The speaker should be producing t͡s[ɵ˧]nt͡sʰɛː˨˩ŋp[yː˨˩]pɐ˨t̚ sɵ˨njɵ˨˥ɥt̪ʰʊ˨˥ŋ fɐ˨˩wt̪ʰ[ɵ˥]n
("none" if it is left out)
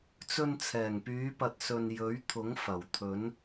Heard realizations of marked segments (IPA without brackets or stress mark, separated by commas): ɵ˧, yː˨˧, ɵ˨˥